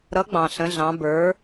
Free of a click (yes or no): yes